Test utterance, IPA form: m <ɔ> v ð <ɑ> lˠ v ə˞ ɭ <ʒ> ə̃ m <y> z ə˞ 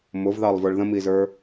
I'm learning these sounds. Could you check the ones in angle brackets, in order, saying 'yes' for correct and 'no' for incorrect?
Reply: no, yes, no, no

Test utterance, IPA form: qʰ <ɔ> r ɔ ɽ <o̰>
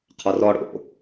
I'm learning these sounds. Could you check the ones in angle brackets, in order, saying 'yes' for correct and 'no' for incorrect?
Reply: yes, yes

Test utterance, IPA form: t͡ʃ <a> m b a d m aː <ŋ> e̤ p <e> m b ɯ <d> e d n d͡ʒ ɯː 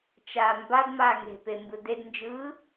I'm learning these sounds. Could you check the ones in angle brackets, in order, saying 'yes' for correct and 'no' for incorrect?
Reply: no, yes, yes, yes

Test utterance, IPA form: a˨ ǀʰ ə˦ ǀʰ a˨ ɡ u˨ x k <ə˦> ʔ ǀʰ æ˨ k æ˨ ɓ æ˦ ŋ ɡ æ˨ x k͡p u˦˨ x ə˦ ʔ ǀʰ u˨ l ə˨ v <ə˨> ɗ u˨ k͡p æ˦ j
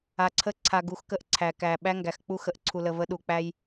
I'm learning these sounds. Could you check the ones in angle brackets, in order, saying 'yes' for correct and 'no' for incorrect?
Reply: yes, no

